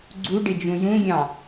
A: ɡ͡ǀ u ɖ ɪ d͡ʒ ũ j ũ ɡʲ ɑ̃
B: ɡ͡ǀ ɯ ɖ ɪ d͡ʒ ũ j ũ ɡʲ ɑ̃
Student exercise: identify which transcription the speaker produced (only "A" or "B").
A